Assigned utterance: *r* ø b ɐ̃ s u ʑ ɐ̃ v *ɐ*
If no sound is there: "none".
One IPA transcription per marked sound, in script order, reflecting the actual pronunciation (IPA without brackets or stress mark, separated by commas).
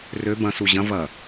r, ɐ